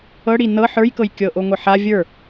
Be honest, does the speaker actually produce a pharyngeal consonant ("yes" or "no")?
yes